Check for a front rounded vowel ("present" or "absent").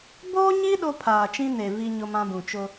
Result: absent